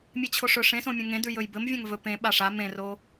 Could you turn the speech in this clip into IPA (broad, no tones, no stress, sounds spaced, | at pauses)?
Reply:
mʲ e t͡ɕʰ o ʂ ɵ ʂ ẽ s õ mʲ õ ŋ ẽ d ʉ j ɵ j b ɘ m vʲ ã ŋ v ɵ p ẽ ɓ a ʂ a m ẽ r o